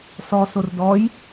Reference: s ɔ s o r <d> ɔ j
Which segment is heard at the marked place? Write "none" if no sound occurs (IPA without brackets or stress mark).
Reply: d